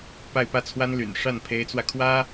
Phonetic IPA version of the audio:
p a˥˧ ɪ̯ p ä˥˩ t͡sʰ w a˥ n l y̰˨˩ n ʂ a˥˩ n pʰ e˧˥ ɪ̯ t͡s w ä˧ kʰ w ä˥

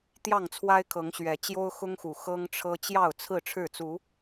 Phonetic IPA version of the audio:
t̪ j ɑ˥˨ ŋ t͡sʰ w a˦ ɪ̯ kʰ ɤ˨˦ ŋ ɕ ɥ ɛ˨˦ t͡ɕ j o˦ ʊ̯ x ʊ˦ ŋ x u˨˩ x ɤ˦ ŋ ʈ͡ʂʰ ɤ˦ t͡ɕ j ɑ˥˨ ʊ̯ t͡sʰ ɹ̩˥˨ ʈ͡ʂʰ ɻ̩˥˨ t͡s u˨˦

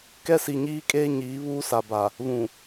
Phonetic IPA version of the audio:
k ɛ˦ s i˨ ɲ iː˦ kʼ eː˦ ɲ iː˨˦ β uː˦ s a˨ b a˨ | β ũ˨

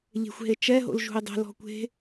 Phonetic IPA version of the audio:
ʎ e̤ xʷ ɦ e t͡ʃ ɛ ɦ o̰ l ʒ ṳ i̯ dˤ ɛ̤ l ɔ̤ kʷ e̤

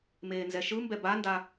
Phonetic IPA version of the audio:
m eː n z ɛ ʃ ɯ m b ɛ b a n d a

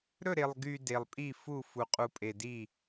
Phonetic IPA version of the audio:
ɾ ɵ˥˨ ɾ e˧ lˠ ɡ y˧ d e˧ lˠ pʼ i˥˨ f u˥˨ f u˧ qʼ u˧ pʼ e˧ d i˥˨

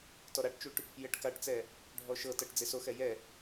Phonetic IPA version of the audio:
t ɔ ɾ a ʈ t͡ʃ u ʈ | j ɛ ʈ k a ʈ t͡s ɛ | ɖʱ ɔ ʃ ɤ t ɤ ʈ d͡z e s o x ɛ j ɛ

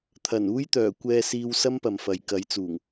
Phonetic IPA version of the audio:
t̪ʰ ɐ˨˩ n uː˥ j t̪ œː˨˩ kʷ ɛː˧ s iː˧ w s ɐ˥ m p ɐ˨ m f ɐ˨ j k ɐ˨˧ j t͡s uː˨˩ ŋ

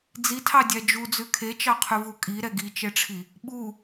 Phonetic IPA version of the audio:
d͡z i tʰ ɑ dʲ æ d͡ʒ u d͡z ʉ kʰ e t͡ʃ ɑ qʰ ʉ v u kʼ i ɾ ɛ ɡ i t͡ʃ ɛ ʈ͡ʂʰ i | ɓ u

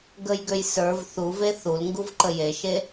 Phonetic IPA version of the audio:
ɡ ə j ɡ ø j s ə˞ v θ u v e θ u l ŋ ɡ u v ǃ ə j e ʃ e

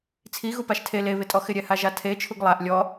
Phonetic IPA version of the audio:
t͡sʰ i ɣ u p a ʃ tʰ e l e β ɪ tʼ ɔ x ɪ ɾʲ ɛ h a ʒ a tʰ e t͡ʃʰ u ɡ lˠ a ʔ lʲ ɔ

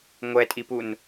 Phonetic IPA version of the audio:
ŋʷ ɛ tʼ i p u n

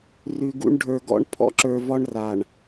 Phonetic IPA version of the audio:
r ʉ˨ ɡ ṵ˦ ɳ ɖʱ ə˞˨ ɡ ɔ̰˦ ɳ pʰ ɔ̰˦ ǁ ə˞˨ v ɒ˦ ɳ r a˨ ɳ

